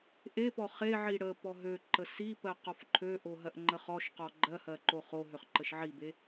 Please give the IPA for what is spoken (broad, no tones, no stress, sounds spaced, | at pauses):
ʔ e p ɔ χ e ʕ i ɽ ə p ɔ ɦ ø ǃ ə s i p ɜ q ɔ f ǃʰ ø ʔ o ɦ ɜ ʔ ŋ͡ǃ ə χ ɔ ʃ q ɔ ɡ͡ǃ ɜ h ɜ ǃ o χ o ɦ ø χ ǃ ə ʃ ʕ i b e